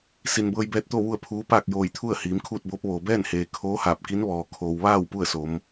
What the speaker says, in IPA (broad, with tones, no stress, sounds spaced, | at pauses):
s i˩ n b ɤː˧ j b ɛː˧ t̚ t̪ o˥˨ ʋ u˥˨ ə̯ pʰ uː˧˥ p aː˥˨ k̚ j oː˧˩ j t̪ʰ u˥˨ ə̯ h iː˩˧ m kʰ uː˥˨ t̚ b oː˧˥ p̚ ʋ oː˩ b ɛː˥˨ n h eː˩ kʰ oː˧˥ h aː˧˩ p̚ k i˧˥ n ʋ ɔː˩ kʰ oː˩ w ʋ aː˥˨ w p u˥˨ ə̯ s o˩˧ m